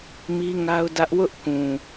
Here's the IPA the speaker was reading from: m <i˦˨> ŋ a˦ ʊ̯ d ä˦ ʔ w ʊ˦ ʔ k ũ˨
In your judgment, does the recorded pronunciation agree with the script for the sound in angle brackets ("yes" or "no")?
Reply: no